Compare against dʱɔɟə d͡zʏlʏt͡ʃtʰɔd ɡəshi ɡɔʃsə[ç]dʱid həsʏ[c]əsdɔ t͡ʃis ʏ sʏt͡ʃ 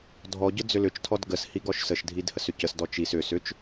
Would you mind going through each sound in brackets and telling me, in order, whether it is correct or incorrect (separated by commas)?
incorrect, correct